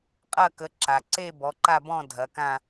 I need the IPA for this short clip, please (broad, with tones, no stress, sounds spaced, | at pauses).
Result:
qʼ ɐ˥˧ k ə˨˦ ǁ a˩ ǀ e˥˧ b ɔ˨˦ ǃ a˥˧ b ɔ̃˥˧ dʱ ɐ˨˦ k ã˥˧